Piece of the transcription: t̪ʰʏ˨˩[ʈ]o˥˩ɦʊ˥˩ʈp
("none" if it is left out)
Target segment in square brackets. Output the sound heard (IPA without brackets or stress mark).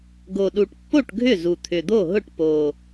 d̪